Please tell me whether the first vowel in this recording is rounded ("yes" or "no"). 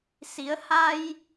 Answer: no